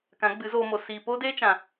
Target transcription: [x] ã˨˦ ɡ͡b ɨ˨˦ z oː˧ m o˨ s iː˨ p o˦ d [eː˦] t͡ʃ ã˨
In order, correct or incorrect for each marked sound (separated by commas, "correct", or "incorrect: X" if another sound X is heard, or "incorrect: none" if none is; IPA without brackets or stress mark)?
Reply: incorrect: k, correct